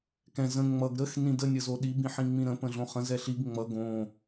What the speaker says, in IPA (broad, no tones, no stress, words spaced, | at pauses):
kɛ̃ zə̃ ŋ͡mʌɡ ɾəx nĩdə nʲəzoɗi bĩħĩŋ͡mĩɾə̃ pə̃ɮõχə̃ zɛɬiɡ ŋ͡mʌ ɡõ